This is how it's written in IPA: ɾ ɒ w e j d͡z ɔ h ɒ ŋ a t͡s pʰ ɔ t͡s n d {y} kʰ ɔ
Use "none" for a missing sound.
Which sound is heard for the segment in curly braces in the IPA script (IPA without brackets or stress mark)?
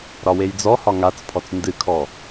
ɨ